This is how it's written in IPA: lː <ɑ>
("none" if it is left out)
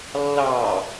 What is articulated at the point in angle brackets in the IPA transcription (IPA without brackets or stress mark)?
ɑ